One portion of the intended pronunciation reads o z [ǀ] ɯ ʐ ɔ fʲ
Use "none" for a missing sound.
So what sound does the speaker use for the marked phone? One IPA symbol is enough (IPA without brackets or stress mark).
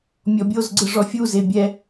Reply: ɡ͡ǀ